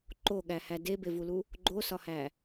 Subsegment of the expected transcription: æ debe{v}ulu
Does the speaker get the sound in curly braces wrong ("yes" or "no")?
no